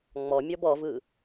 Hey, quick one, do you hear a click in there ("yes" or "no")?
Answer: no